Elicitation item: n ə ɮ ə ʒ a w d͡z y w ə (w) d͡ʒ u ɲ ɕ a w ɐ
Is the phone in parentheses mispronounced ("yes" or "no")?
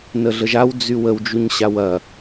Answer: no